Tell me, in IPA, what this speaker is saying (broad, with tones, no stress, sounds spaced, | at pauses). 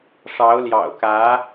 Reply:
ʂ ɑ˧˥ ʊ̯ l j ɑ̰˨˩ ʊ̯ k ä˧˥